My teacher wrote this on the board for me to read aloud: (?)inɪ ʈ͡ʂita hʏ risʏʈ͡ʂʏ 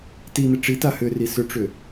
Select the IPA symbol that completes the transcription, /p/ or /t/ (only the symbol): t